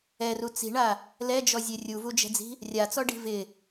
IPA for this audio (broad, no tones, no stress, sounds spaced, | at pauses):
ɛ r u t͡s i̤ ɳ a | l ɛ d͡ʒ ɔ zʲ e rʲ u v u d͡ʒ ɛ̤ d͡z i̤ | rʲ a t͡s ɔ ɖ i̤ v ɪ